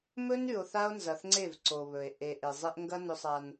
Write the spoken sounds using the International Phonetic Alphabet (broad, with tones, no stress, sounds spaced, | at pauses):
m ɵ˦ n ʉ˨ o̯ θ a˦ o̯ n z ɐ˨ θ ŋ͡ǀ e˦˨ v ǀ o˨ β ɵ˨ e̯ ʔ e˨ ʔ e˨ zˤ e˦ ʔ ŋ ɡ ɐ˦ n ɵ˦ sˤ a˦ n